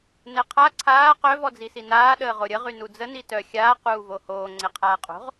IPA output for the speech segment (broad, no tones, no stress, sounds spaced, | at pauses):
n ɛ qʰ a ǀʰ aː q œ v ɔ d͡z i s i n aː ɗ əː ʁ o ɾʲ ə ʁ y n u d͡z ə n i t œ xʲ aː q uː v o h oː ŋ͡ǀ e qʰ aː qʼ o̤ ʁ